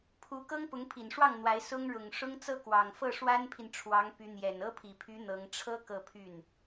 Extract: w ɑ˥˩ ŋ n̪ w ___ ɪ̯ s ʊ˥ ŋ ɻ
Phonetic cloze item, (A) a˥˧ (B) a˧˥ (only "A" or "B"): B